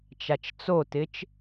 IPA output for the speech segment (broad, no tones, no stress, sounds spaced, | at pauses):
t͡ʃ a t͡ʃ t͡s o t ɪ t͡ʃ